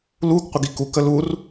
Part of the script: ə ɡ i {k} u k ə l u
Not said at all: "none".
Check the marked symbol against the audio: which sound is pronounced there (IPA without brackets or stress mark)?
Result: k